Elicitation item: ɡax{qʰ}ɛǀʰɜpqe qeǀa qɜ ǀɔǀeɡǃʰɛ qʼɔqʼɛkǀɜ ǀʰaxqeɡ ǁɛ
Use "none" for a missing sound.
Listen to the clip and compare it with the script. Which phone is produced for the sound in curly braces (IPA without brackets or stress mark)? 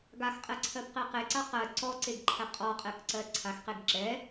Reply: qʼ